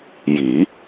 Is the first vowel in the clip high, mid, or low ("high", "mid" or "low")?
high